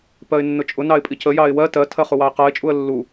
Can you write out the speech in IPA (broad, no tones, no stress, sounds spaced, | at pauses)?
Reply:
p ɜ ɪ̯ nː ʊ t͡ʃʼ ʊ n ɑ ɪ̯ pʼ i c ə j ɑ ɪ̯ w ɜ t ɜ tʰ ɜ χ u w ɑ ɪ̯ q ɜ ɪ̯ t͡ʃʼ u ə̯ lː u